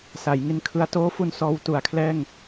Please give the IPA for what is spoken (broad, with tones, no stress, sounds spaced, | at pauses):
s a˩˦ j ŋ i˧ n kʰ ɯ˧ a̯ t oː˦˥ f u˧ n s ɔː˧ w t u˩˦ a̯ kʰ l ɛː˥˩ ŋ